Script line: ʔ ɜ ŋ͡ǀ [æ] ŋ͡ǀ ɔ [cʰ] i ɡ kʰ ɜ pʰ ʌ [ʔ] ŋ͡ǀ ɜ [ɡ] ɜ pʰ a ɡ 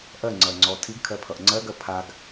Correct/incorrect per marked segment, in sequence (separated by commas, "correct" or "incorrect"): incorrect, incorrect, correct, correct